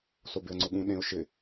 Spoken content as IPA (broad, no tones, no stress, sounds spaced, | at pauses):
s o b ɪ ə̯ ŋ͡ǀ ʊ ɠ ũ ɗ ẽ ʊ̯ ʃ ɪ